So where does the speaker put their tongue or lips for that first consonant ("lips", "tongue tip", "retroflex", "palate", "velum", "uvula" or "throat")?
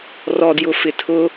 tongue tip